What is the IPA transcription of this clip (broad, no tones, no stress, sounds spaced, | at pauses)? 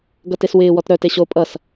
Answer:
ɡ ʌ t e s w ɪː w ɔ t ɾ œ t e ɕ o pʼ ʌ s